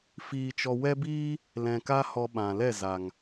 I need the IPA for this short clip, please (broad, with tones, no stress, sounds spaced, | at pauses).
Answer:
f iː˧ t͡ʃ ɔ˧ w ɛ˦ b iː˦ | l ɛ̃˧ k a˦ h ɔ˧ ɓ ã˨ l ɛ˦˨ z a˨ ŋ